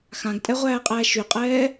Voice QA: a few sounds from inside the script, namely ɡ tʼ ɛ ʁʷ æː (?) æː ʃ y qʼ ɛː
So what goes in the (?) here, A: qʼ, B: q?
A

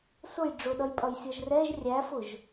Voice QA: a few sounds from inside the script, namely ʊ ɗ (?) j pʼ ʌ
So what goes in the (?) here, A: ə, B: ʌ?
B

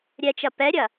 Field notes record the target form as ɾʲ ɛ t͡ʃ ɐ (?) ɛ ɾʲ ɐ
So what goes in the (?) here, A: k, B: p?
B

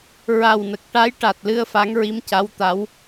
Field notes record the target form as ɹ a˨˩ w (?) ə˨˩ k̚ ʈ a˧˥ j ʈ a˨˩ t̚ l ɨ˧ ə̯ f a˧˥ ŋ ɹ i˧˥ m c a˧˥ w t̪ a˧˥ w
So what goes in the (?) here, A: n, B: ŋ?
A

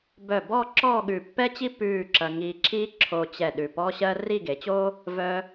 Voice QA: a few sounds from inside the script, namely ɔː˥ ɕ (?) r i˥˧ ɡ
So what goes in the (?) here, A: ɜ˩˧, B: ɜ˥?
B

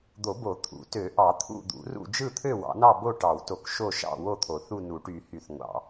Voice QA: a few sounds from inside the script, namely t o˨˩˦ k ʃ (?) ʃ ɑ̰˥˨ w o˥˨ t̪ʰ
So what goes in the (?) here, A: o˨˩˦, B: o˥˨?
B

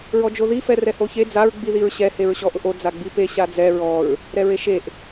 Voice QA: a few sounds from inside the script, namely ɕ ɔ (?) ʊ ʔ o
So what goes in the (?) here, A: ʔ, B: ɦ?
A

